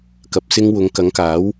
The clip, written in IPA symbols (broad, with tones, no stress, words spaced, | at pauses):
kɐ˨˥p̚ sɪ˧ŋ wʊ˨˧ŋ kɐ˨˥ŋkaː˨˥w